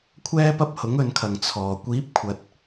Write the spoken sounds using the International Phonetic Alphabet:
kʷʰ ɛː˥ p ɐ˥ p̚ h ʊ˨˥ ŋ ɵ˨˧ n kʰ ɐ˨ ŋ t͡sʰ ɔː˨ kʷ iː˨˥ p̚ kʷʰ ɐ˨ t̚

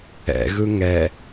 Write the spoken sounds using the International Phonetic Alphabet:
ɛ̰ ɣ ɯ ŋ ɛ

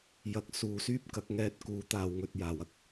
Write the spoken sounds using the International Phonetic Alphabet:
j ɐ˨ k̚ s uː˨ s yː˥ p̚ k ɐ˨˥ k̚ ŋ ɛː˧ t̚ k uː˨˥ t̪ aː˨ w ŋ ɵ˨ t̚ j aː˨˩ w ɐ˧ k̚

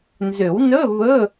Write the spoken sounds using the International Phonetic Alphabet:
n z ʏ˨˩˦ w n ɵ˧˥˧ β ɵ˧˥˧

